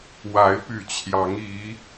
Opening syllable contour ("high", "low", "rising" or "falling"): rising